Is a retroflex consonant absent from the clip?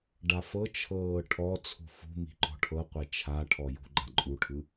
no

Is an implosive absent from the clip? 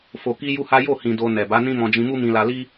yes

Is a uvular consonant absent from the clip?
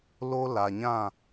yes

